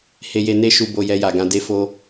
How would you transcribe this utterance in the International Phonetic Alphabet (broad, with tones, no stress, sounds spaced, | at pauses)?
h e˧ j e˧ n e˦ ʃ u˧ b o˧ j ɛ˧ j a˨ ɡ ã˧ d e˧ f o˧